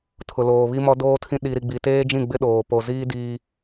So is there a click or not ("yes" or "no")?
no